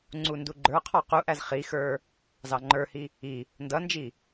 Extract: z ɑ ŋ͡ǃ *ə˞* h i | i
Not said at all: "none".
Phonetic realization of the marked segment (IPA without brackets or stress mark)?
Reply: ə˞